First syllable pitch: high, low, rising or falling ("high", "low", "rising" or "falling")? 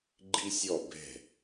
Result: high